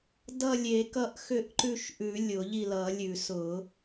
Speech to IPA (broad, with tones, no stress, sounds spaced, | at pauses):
d ʌ˦˨ lʲ e˨˩˦ k ʌ˦˨ ʔ x ʏ˦˨ ʔ ǃ ʉ˦˨ ʃ ʔ ʉ˨˩˦ lʲ ʊ˨˩˦ ʎ i˦˨ l ʌ˨˩˦ lʲ ʉ˨˩˦ s ʊ˨˩˦